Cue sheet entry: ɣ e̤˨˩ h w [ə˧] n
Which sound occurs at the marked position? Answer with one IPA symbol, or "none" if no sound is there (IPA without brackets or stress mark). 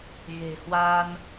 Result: a˧